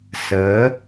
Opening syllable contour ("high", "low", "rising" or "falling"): rising